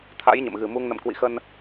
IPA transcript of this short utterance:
t̪ʰ a̰˧˥ j ɲ ə̰˧˨ m ɣ ɨ˨˩ m u˧ ŋ n ə̰˧˨ m k w ḭ˧˨ x ə˧ n

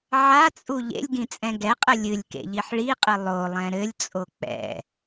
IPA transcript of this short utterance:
ʕ a t͡sʼ u ʎ ḛ lʲ ɡ ĩ t͡sʼ ɛ̃ ɡ ɛ qʼ ɘ lʲ ɨ lʲ k ḛ ʎ i ħ ɭ i qʼ ɘ lˠ o lˠ ɛ̃ ɾ ɘ lʲ t͡sʼ o k͡p ɛ̰

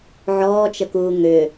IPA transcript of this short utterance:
ʕ ɔː t͡ʃ ə k uː ŋ ʏ

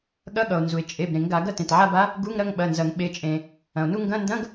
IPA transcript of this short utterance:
ɠ ɐ˧˥˧ ɠ ʌ˩ o̯ n z u˩ e̯ t͡ʃʼ e˩˧˩ b ɾ ẽ˨˩˦ ŋ ɡ a˨˩˦ ɡ ɐ˥˧ t ẽ˩ t ʕ a˥˧ b a˧˥ | ɡ u˧˥˧ ŋ ɾ ɐ˥˧ ŋ ɓ ɐ˩˧˩ n z ɐ˨˩˦ ŋ ɓ e˩˧˩ t͡ʃʼ ẽ˩ | ɐ̃˩ o̯ n u˥˧ ŋ ɡ ɐ̃˧˥˧ n d ɐ̃˧˥˧ ɡ

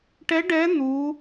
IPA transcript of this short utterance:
ʈ ɛ˦˥ ɖ ɛ˦˥ n̪ u˦˥

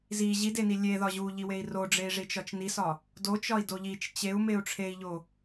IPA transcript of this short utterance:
z i ʑ i d e n i lʲ e ð ɒ ʑ u ʎ i w e i̯ r o ɖ͡ʐ e i̯ ʐ i t͡ʃ ɒ t͡ʃ n i s ɒ | d o t͡ʃ ɒ i̯ d o ʎ i t͡ʃ t͡ɕ e u̯ m e u̯ ʈ͡ʂʰ e i̯ ʎ o

